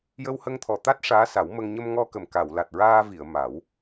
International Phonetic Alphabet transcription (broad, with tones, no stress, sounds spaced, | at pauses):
j ə˧ w h ə˧ ŋ t̪ʰ ɔ˨˩ t̪ a˦˥ t̚ ʂ aː˧˥ s a˨˩˦ w m ə˧ ŋ ɲ ə˧ m ŋ ɔ˧ k ə˨˩ m k a˨˩˨ w l a˨˩ t̚ ɹ aː˧ v i˨˩˨ ə̯ m a˨˩˦ w